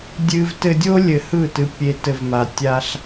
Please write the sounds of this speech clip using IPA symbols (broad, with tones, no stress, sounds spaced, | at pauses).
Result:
dʲ ɨ˧ v t ɘ˧ dʲ o˦ lʲ ɘ˧ h ɯ˦˨ t ɨ˧ pʲ e˧ t ɘ˧ v m a˧ tʲ a˦ ɬ